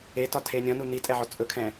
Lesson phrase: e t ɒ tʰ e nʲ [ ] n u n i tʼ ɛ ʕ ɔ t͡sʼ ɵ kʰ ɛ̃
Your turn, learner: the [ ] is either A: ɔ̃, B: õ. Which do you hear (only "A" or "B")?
A